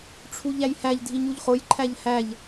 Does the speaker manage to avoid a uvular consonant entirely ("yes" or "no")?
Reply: no